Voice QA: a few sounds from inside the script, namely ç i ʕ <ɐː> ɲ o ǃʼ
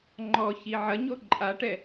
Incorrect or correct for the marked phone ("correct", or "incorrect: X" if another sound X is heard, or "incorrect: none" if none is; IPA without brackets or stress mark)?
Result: incorrect: ɐ